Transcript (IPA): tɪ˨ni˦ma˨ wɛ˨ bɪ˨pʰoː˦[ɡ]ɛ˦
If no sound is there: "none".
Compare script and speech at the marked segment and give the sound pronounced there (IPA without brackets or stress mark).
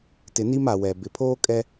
kʼ